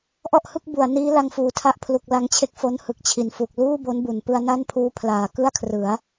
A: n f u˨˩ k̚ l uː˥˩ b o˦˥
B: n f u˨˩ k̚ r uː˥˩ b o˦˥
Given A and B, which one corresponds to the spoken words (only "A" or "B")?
A